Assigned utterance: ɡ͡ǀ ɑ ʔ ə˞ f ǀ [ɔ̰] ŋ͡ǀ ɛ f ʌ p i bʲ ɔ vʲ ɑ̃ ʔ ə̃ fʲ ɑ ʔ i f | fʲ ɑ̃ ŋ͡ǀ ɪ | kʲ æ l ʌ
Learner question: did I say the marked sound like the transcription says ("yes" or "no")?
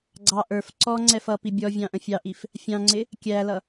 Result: no